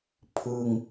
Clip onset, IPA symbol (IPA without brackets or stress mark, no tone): pʰ